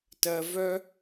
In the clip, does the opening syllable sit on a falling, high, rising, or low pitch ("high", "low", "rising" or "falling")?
high